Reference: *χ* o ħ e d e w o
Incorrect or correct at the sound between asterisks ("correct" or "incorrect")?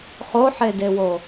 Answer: correct